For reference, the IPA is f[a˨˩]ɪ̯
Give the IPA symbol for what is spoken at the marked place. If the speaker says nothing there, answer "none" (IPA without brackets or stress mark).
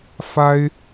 a˥